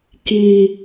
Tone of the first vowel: low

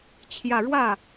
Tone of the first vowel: falling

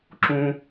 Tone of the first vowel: high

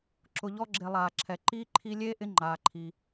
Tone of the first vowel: low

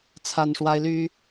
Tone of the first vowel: high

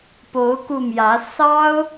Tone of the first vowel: rising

